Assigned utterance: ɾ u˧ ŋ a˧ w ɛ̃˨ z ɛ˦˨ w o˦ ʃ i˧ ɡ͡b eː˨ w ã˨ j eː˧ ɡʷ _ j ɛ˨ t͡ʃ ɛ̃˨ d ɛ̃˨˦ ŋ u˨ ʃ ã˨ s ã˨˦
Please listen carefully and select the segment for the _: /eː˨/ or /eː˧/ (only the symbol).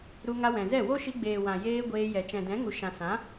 eː˧